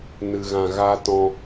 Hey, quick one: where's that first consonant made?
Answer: tongue tip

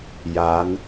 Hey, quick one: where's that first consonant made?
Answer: palate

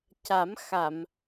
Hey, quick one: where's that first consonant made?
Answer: palate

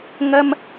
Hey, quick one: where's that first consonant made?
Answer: velum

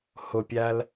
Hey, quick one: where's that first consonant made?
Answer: throat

